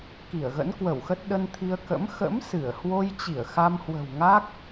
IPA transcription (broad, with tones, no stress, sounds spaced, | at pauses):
k i˧˩ ə̯ ɣ ə̰˧˥ n k w ə˧˩ w x ə˦˥ t̚ ɗ ə˧ n t̪ʰ i˧ ə̯ k ə̰˧˥ m x ə̰˧˥ m s ɨ˧˩ ə̯ h w o˧ j t͡ɕ i˧˩ ə̯ x a˧ m h w ə̤˨˩ w ŋ a˦˥ k̚